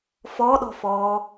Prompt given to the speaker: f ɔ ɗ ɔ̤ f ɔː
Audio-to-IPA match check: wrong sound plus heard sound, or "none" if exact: none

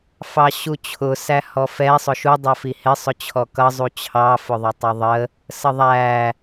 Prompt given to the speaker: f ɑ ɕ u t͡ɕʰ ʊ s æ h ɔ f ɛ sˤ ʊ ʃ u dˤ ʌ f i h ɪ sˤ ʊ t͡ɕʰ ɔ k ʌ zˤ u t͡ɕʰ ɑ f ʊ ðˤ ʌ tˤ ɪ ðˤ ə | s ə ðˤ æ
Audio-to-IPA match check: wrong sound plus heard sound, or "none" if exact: none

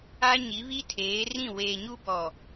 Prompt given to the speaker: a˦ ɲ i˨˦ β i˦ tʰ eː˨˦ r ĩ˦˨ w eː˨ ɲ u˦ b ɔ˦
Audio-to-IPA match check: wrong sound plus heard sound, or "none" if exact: ɔ˦ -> ɔ˨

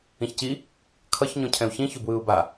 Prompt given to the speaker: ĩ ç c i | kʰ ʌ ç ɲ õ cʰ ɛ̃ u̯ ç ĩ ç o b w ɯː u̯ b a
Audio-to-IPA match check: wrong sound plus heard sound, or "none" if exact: none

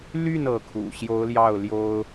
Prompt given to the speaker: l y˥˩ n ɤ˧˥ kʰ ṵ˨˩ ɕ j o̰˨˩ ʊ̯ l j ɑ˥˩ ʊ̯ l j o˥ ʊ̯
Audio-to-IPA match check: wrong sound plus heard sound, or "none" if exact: o̰˨˩ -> o˧˥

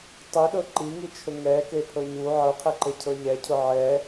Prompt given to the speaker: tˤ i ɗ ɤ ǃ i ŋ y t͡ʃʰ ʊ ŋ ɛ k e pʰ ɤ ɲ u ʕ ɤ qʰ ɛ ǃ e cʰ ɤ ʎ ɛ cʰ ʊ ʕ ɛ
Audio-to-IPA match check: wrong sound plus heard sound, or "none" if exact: y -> i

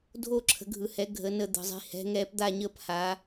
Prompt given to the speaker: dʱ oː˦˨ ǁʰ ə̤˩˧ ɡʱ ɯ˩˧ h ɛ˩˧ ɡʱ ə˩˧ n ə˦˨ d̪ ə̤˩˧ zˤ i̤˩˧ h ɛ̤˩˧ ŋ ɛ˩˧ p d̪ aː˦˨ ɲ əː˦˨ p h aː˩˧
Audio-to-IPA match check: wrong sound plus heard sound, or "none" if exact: none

